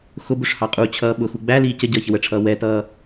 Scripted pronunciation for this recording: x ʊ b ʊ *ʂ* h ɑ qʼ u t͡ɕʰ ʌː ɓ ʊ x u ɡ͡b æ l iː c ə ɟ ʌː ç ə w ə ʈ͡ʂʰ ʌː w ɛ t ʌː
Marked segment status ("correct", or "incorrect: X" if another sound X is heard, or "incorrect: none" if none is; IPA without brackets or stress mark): correct